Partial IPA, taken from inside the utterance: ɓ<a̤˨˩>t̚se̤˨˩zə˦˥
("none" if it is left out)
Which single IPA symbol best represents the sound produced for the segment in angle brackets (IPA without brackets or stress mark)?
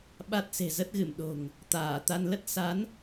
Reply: a˦˥